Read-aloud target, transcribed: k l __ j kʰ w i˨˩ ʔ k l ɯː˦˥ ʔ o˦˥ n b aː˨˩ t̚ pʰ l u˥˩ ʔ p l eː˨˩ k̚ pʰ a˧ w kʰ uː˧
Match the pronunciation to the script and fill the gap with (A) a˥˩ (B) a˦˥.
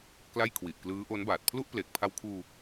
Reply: A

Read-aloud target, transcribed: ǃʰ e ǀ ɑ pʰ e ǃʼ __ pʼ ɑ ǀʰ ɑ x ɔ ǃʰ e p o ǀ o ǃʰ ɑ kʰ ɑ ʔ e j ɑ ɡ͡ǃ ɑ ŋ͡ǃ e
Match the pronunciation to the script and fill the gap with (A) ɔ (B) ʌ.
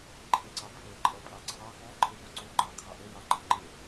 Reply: B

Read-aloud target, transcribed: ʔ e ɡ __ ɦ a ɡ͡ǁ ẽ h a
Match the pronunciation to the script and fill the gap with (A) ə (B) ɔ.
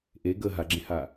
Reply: A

